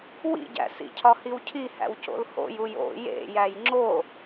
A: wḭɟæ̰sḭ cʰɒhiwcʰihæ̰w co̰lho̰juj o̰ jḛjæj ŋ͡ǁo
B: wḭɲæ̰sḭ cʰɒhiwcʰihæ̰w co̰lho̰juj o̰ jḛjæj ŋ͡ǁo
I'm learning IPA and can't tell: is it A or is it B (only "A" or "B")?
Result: A